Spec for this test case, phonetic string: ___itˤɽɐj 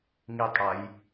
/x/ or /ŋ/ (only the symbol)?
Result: ŋ